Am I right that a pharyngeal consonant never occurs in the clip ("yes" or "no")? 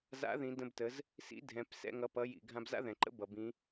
yes